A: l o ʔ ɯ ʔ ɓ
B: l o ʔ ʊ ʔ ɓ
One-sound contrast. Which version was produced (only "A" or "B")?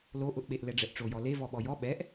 B